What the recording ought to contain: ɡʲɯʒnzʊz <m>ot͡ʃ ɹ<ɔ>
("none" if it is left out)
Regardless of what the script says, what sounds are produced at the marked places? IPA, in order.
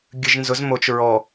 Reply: m, ɔ

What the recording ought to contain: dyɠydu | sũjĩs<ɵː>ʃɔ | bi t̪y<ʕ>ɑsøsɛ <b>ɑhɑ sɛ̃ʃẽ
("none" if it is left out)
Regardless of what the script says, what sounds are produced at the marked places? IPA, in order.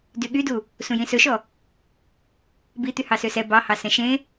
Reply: ɵ, h, b

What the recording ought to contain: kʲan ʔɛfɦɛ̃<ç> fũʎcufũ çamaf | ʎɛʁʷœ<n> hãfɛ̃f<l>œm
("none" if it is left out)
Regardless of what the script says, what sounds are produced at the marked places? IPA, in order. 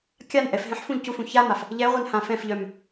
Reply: ħ, n, ʎ

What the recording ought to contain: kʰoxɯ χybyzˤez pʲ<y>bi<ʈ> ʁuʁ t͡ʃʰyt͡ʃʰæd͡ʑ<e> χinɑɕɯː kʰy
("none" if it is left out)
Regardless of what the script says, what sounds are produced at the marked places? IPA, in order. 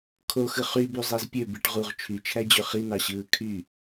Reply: ø, ʈ, ø

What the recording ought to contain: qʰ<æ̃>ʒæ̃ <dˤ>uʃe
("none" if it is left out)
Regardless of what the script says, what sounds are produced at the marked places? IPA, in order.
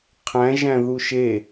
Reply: æ̃, ð

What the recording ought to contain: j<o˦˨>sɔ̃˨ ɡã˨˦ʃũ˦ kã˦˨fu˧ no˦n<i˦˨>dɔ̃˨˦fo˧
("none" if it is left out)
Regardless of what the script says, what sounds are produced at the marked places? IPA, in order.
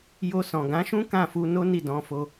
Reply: o˧, i˦˨

